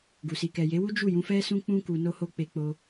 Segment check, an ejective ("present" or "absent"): absent